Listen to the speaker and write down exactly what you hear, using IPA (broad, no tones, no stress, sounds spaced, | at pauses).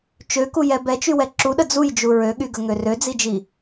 t͡ʃ ø k u j ɛ b ɛ t͡ʃ y w ɛ ǁ u ɗ ə d͡z u j d͡ʒ u ɹ ø ɠ y ɡ ə ŋ ø r ø d͡z i d͡ʒ i